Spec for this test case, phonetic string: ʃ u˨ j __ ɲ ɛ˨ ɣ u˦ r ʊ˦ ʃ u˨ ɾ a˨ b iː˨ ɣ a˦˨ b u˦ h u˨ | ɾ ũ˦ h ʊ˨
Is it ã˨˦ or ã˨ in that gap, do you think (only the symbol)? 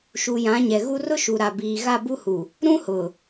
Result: ã˨˦